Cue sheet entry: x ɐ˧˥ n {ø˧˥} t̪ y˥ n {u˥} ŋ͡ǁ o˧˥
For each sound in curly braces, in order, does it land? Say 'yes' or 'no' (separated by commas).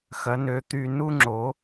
yes, yes